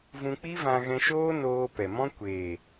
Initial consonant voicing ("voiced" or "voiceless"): voiced